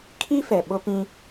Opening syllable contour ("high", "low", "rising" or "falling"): high